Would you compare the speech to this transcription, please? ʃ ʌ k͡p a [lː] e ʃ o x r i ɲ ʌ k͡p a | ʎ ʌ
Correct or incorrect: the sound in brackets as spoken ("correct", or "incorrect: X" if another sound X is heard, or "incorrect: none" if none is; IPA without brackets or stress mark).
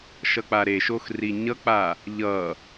incorrect: ɾ